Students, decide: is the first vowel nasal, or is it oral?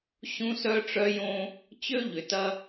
nasal